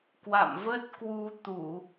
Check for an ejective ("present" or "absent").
absent